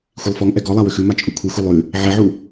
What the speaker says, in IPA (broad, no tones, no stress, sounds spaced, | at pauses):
xʷ i lˠ f ɔ ŋ ʔ ɛ ɡ ɔ lˠ a w ʏ x ʉ m a t͡ʃʼ u kʷʰ i xʷ i lˠ ʉ | ʕ ɛ ʕ u